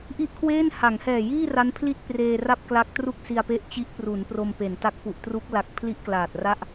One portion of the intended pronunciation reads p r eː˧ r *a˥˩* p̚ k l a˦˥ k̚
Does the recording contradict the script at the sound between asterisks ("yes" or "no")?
no